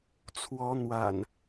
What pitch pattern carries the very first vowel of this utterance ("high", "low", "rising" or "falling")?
rising